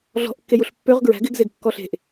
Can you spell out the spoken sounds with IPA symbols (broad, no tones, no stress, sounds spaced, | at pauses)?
ɮ ɔ̤ ʔ kː e j u ɬ pː ø ʁ ɡ ɹ æ̤ ɡ ɪ ɡ z e ɡ kː ɔ ɬ e̤ ʔ